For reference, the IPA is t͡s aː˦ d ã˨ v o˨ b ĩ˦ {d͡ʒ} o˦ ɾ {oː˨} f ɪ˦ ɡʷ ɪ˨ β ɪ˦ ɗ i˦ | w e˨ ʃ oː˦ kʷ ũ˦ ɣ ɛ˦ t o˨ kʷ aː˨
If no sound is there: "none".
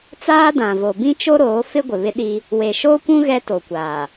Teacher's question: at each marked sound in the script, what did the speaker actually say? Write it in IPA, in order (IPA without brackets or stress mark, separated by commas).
t͡ʃ, oː˨˦